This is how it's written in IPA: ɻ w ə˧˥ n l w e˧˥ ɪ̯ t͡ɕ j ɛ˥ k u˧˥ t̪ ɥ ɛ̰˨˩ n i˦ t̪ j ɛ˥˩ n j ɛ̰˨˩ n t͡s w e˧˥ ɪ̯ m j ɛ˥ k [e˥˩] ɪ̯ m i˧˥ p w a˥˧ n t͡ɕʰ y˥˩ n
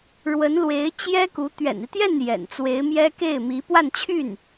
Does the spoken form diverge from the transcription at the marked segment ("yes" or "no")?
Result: no